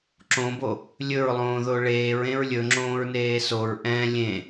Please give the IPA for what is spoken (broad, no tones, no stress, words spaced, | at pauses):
ǁõbo | lʲɵɹlˠõːðo ɭeːɹẽɹ lʲɵŋ͡ǁõːɹneː soɹ ʔɛ̃ lʲẽ